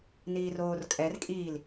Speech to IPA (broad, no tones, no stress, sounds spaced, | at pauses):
n iː r oː r kʼ ɛ r kʼ iː l